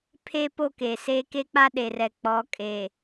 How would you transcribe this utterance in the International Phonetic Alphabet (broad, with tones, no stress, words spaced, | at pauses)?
pʰe˦po˦˨ ke˨se˦ ke˦k͡pa˦ɗe˨rɛ˨ k͡pɔ˨˦kʼe˨